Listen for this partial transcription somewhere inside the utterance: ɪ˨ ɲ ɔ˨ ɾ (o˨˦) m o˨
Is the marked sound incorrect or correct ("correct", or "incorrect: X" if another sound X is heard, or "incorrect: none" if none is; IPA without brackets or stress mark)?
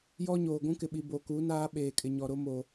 incorrect: o˦